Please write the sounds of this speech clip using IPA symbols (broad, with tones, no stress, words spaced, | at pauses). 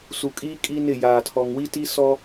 su˨kʼiː˦ kʼi˦ nɪ˦˨jaː˨tʰɔ˨ŋ wi˦ti˦ sɔ˦